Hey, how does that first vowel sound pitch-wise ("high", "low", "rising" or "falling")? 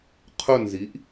falling